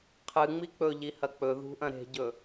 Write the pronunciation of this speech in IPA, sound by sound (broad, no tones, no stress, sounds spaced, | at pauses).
qʰ ɨ ŋ͡m i k͡p ɵ ʎ i h ɐ k͡p ɵ ð ṳ ʔ ɐ̃ ɾ e̤ ɟ ɵ